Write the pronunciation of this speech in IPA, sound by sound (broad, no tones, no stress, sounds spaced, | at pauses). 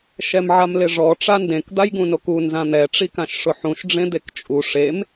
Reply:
ʃ ɛ m ʕ a m l ɪ ʐ ɔ ʈ͡ʂ a n d ẽ k d̪ a j ɡ ũ n o k u n z ã n̪ ɛ ʈ͡ʂ i k ã ʃ ʂ ʊ ħ ũ ʃ ɖ͡ʐ ẽ d̪ e k t͡ʃʼ u ʂ e m